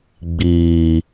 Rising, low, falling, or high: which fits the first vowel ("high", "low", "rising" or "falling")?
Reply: low